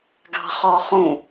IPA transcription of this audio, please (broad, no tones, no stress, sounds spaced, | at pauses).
ɡ ɑ̤ χ ɔ χ ũ